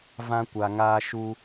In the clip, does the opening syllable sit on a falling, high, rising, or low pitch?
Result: high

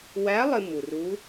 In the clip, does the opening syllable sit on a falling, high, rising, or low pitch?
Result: rising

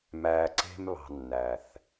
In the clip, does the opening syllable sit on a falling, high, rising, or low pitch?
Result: low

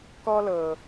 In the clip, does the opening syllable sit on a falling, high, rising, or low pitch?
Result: high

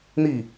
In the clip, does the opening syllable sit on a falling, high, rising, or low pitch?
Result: falling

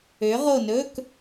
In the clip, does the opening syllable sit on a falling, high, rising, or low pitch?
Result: rising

